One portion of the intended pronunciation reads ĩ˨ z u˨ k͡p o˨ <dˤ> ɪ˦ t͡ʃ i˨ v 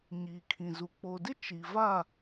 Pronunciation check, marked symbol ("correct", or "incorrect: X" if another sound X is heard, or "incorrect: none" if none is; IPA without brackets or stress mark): incorrect: d